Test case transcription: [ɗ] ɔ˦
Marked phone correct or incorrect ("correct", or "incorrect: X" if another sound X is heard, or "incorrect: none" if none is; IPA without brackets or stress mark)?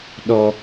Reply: correct